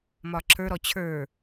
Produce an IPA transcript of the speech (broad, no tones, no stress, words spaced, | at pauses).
mɒǁə˞ɾɔ t͡ɕʰə˞